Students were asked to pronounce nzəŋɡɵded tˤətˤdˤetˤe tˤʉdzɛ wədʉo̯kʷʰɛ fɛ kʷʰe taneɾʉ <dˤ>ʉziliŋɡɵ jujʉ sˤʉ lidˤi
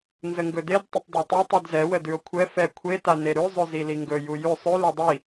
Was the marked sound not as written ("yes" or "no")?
yes